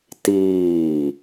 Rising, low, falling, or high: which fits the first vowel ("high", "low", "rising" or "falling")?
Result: falling